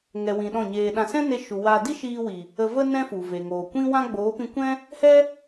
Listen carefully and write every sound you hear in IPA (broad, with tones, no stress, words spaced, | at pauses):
ŋɛ˨wĩ˨ ɗɔ̃˦˨ɲeː˧ ɗã˧ sɛ̃˦ne˧ ʃu˧ waː˧ di˦ʃiː˧ wi˨ | ə˧və˦ nɛ̃˦fu˨ve˨ŋoː˨ kʷĩ˦wã˦ ɡ͡boː˨˦pĩ˧kʷɛ̃˦ | hɛ˦